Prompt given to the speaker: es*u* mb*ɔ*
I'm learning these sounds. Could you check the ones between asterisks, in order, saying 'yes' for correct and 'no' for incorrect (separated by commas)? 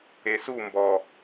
yes, yes